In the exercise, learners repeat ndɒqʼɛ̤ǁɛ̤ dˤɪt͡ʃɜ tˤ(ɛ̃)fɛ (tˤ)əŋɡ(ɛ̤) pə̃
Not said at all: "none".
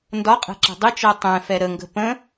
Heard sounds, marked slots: ɛ̃, ɾ, ə̤

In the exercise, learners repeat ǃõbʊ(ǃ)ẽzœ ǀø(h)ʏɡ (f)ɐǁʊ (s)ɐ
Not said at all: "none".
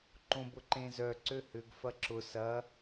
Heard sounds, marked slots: ǃ, h, f, s

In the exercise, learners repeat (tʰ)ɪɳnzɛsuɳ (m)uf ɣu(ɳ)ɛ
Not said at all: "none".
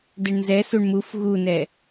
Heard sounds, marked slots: d, m, n

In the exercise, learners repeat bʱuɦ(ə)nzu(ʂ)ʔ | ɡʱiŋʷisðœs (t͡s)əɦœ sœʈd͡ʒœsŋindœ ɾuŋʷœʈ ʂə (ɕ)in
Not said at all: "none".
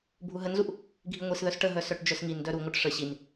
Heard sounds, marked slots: ə, none, ʈ, ɕ

